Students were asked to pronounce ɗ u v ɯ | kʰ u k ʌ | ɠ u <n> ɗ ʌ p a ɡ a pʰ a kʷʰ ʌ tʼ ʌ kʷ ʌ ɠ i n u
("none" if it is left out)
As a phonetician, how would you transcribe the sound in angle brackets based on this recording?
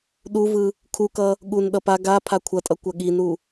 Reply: n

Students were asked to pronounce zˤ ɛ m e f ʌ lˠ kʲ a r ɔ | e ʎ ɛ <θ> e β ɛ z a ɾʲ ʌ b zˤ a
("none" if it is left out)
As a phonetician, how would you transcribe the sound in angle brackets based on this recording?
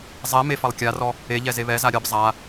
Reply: z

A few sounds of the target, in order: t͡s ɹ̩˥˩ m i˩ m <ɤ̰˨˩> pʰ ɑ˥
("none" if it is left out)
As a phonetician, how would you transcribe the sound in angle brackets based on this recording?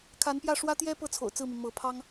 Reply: ɤ˧˥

